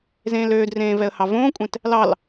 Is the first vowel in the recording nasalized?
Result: yes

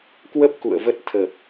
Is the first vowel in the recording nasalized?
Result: no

